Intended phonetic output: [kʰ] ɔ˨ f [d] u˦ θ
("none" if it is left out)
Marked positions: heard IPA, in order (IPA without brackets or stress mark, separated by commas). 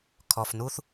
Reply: kʰ, n